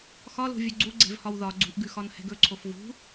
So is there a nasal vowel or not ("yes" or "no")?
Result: no